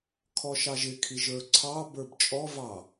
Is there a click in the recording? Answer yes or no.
yes